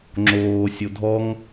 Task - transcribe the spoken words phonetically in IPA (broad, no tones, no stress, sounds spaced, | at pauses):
ŋ͡ǁ oː sʲ o dʱ ɔ ŋ